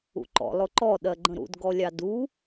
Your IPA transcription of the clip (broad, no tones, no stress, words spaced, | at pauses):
ṵǃɔ̰ lˠʊǃɔ ɗɜɡ͡ǃə̃ɾṵd ɡɔlʲɑdu